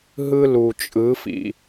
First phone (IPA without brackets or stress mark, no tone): ɦ